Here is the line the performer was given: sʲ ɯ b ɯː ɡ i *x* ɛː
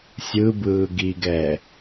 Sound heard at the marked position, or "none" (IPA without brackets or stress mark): ɡ